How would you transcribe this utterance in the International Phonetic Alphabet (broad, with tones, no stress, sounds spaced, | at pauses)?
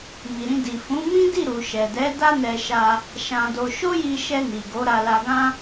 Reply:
m i˨ ɾ ĩ˧ d i˨ f ũ˨˦ m ĩ˦ d i˦˨ ɾ u˨ ʃ ɛ˨ d ɛ˨˦ d a˦ n ɛ˧ ʃ a˧ | ʃ ã˧ d o˧ ʃ o˦ j i˧ ʃ ɛ˧ n i˨ ɡ o˨˦ ɾ a˧ l a˧ ɡ ã˦